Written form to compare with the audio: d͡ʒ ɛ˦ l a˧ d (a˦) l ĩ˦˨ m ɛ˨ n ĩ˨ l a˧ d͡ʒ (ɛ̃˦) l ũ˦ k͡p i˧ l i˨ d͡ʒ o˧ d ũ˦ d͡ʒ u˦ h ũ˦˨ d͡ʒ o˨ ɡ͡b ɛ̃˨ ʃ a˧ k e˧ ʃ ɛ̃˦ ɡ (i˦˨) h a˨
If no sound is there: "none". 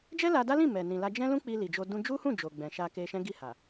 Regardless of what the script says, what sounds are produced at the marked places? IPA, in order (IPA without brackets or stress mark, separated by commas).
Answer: a˦, ɛ̃˦, i˦˨